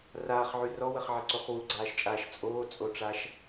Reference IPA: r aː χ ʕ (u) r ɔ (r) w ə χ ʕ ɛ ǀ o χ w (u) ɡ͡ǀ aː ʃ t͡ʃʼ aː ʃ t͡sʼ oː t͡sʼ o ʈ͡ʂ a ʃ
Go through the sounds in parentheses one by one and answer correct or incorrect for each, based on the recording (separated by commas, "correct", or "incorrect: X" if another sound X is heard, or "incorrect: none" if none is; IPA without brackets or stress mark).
incorrect: y, incorrect: none, correct